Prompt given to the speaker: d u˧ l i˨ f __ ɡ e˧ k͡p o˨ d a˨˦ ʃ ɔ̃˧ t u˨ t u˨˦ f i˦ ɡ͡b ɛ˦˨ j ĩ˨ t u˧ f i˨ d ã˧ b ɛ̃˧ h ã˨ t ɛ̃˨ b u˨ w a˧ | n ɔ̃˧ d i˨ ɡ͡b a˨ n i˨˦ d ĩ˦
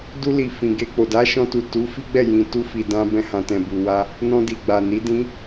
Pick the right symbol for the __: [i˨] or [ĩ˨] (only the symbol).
ĩ˨